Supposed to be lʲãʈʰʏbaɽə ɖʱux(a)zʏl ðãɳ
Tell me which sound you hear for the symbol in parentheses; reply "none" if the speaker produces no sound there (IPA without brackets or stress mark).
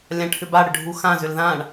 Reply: ã